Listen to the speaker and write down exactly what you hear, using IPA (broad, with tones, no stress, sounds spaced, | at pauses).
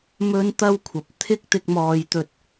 m ɵ˥ n t̪ ɐ˥ w kʷʰ ɐ˨ p̚ t̪ʰ ɪ˥ k̚ t̪ ɪ˧ k̚ m ɔː˨ j t̪ ɵ˨ t̚